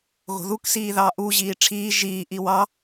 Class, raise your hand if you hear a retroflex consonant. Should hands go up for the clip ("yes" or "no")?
yes